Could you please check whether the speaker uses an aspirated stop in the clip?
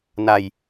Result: no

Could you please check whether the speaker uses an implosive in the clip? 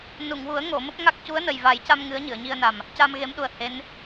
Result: yes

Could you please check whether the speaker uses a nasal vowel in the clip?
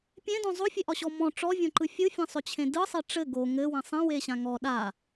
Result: yes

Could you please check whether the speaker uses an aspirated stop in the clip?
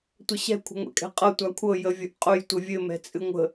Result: yes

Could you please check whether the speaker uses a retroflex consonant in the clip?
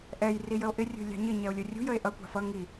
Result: no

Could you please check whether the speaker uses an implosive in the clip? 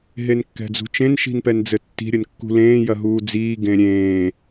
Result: no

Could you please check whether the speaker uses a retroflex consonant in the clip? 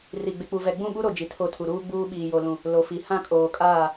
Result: no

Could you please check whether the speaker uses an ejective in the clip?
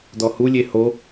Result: no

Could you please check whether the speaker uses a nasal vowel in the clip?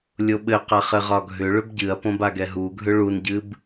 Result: yes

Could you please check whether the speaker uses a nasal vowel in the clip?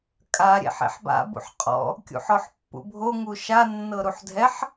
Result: no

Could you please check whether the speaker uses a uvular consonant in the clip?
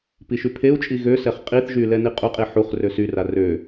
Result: yes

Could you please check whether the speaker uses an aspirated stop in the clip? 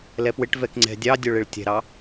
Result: no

